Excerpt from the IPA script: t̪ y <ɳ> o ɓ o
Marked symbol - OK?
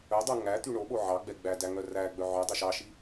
yes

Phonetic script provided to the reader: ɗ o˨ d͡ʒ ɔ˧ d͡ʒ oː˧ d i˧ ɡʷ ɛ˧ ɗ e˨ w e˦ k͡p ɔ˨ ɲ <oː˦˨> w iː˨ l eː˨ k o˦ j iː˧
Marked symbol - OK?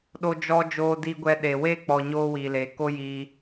no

